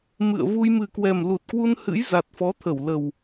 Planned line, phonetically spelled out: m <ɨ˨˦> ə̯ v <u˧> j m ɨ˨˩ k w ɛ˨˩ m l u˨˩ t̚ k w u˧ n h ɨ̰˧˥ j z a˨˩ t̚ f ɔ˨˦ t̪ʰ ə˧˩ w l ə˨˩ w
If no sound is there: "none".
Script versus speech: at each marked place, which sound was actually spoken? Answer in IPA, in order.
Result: ɨ̰˧˨, u˧

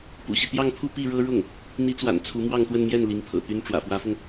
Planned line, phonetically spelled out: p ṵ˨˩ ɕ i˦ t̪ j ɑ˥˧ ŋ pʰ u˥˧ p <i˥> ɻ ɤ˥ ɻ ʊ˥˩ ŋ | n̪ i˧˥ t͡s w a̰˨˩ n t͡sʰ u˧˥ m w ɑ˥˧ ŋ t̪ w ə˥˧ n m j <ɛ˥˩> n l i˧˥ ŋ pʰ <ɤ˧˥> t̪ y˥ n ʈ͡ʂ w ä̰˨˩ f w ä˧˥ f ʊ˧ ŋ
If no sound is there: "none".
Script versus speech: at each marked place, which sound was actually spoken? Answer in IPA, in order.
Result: i˥˩, ɛ˥˩, ɤ̰˨˩

